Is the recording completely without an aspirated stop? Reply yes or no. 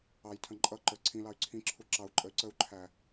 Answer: no